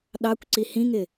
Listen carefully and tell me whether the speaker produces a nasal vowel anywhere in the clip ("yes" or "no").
yes